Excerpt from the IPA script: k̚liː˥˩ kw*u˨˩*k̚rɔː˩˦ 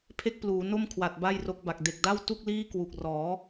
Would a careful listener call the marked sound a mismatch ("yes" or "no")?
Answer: no